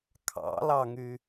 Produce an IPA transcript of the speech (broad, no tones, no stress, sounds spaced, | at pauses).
kʰ ɑ̰ l ɑ ŋ y